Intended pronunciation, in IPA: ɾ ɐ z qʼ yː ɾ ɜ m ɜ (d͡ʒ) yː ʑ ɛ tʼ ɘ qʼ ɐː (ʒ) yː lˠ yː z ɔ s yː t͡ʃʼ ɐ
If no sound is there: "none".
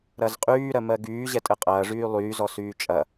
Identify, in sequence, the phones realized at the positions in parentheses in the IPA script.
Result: ɡ, ʐ

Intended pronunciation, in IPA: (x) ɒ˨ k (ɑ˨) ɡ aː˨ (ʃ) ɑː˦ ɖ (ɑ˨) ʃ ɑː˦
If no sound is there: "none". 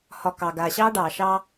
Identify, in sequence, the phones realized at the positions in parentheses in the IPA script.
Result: h, ɑ˨, ɕ, ɑː˨

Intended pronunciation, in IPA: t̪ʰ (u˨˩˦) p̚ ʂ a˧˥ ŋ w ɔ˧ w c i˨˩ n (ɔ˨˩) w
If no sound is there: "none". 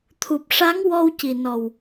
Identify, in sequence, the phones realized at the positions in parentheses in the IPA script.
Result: u˨˩, ɔ˨˩

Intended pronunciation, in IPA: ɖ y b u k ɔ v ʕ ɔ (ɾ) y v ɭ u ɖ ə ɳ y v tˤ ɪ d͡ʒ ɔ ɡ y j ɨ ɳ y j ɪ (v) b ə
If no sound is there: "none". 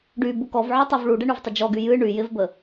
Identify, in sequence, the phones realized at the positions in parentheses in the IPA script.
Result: tˤ, v

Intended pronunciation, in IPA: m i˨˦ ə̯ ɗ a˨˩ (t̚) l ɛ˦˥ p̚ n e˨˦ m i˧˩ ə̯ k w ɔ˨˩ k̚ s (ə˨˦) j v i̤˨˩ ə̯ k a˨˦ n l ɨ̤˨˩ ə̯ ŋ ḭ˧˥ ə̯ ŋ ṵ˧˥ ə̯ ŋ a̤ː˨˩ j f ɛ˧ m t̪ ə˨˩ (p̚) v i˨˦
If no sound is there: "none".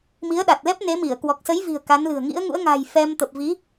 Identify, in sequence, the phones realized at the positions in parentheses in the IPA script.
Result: t̚, ə˨˦, p̚

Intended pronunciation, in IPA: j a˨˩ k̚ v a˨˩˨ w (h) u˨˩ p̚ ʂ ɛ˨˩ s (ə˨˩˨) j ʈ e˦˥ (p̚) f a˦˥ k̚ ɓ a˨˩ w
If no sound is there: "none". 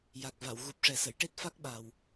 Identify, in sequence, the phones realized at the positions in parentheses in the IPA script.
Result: ɣ, ə˨˩˨, t̚

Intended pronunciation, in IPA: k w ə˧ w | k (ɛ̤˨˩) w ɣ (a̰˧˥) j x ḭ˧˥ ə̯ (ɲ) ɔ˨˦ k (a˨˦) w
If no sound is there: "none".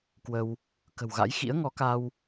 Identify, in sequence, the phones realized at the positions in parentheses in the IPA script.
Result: ə̤˨˩, a̰˧˥, ŋ, a˧

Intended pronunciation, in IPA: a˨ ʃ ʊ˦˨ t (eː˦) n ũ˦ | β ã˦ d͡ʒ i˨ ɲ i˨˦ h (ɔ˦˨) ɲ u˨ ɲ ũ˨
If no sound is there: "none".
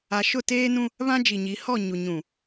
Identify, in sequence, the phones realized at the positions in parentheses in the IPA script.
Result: eː˦, ɔ˦˨

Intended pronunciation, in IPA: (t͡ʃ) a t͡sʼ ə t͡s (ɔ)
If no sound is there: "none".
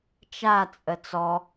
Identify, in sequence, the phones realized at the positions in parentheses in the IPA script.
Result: t͡ʃ, ɔ

